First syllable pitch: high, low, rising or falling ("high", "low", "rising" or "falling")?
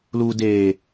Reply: low